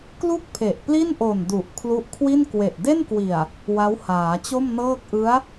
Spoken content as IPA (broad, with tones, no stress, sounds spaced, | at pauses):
k l u˥˩ k̚ pʰ e˨˩ ʔ p l i˥˩ n ʔ o˨˩ n d u˨˩ ʔ kʰ l u˦˥ ʔ kʰ w i˥˩ n k w e˨˩ ʔ d e˥˩ n k w i˨˩ a̯ | w a˦˥ w h aː˩˦ t͡ɕ o˥˩ m n ɤː˥˩ k̚ ʔ ɯ˦˥ a̯